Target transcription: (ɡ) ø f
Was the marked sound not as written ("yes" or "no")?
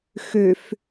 yes